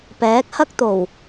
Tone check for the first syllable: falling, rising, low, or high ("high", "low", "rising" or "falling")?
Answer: rising